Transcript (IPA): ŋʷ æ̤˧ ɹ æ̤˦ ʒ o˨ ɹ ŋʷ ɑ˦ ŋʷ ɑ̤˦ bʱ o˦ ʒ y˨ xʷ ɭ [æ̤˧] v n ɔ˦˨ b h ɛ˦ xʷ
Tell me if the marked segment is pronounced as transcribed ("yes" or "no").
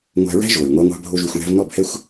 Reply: yes